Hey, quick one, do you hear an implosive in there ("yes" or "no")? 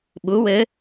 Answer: yes